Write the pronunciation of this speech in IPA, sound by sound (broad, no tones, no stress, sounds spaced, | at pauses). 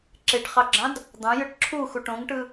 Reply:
ǁ e ʈ χ ɑ ɡ͡ǁ ɑ̃ d | d̪ ɑ̃ j ɯ ʈ ǁʰ u x u ʈ õ ŋ ʈ ɯ